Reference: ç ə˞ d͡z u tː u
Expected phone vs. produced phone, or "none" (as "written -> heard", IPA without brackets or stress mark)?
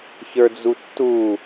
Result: none